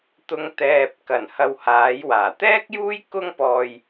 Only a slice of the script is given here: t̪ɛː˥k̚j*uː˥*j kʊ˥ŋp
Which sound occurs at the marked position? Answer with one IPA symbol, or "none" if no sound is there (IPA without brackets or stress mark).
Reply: uː˥